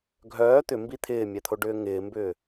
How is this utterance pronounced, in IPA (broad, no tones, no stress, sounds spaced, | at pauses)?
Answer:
ɡʱ œː t̪ ʏ m b i t̪ʰ ɪː mʲ ɛ t̪ʰ o ɖ ʏː ŋ ɪː m b ʏː